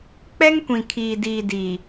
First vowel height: mid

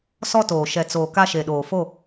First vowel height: mid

